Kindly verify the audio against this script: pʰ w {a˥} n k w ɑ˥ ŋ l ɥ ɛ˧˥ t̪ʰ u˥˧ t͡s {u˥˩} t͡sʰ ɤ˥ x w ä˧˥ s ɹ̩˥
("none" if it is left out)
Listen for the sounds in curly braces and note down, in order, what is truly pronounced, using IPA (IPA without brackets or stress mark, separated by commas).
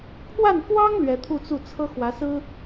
a˥˩, u˥˩